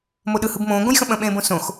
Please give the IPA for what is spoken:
m o ɗ ɯ h ɯ b m õː ɡ õ j x ə̃ ɓ ə̃ ɓ ẽː b õ s õ x

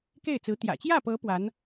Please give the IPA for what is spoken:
k e˥˩ ɪ̯ t͡s ɹ̩˧˥ t̪ j ä̰˨˩ t͡ɕ j ä˥˩ p ɤ˧˥ p w a˧˥ n

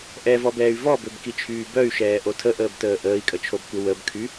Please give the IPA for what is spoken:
ʔ ɛ v ɔ b ɛː y̯ v ɔ b ø b k i t͡ʃʰ yː b œ y̯ ʃ ɛː ʔ o tʰ ə ʔ əː b t əː ʔ əː i̯ kʼ ə t͡ʃʰ o b kʷ ə w ə b kʰ y

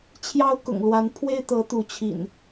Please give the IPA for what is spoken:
t͡ɕʰ j ɑ˦ ʊ̯ k ʊ̰˨˩ ŋ l w a˨˦ n pʰ w e˦ ɪ̯ t̪ ɤ˨˦ t̪ u˨˦ t͡ɕʰ ḭ˨˩ n

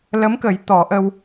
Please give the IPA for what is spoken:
l ə˧˥ m k ə˨˩˦ j t̪ ɔ˨˩˦ ʔ ə˧ w

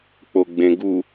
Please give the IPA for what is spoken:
k͡p o ɡ͡b ẽ ɡ u

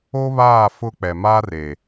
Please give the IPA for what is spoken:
o˦ β aː˦˨ f ʊ˦ k͡p ɛ˨ m a˦ r e˨

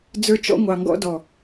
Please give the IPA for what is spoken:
d͡z ə˞˧ t͡ʃ ɔ̰˧ ŋʷ ɑ˨ ŋ ɡ ɔ̰˧ d ɔ˨

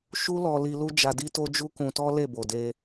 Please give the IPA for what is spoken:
ʃ u˦ l ɔ˧ l i˧ l u˦ d͡ʒ a˧ d i˦ t o˦ d͡ʒ u˦ k ũ˧ t ɔ˦ l e˦˨ b o˨ d e˧

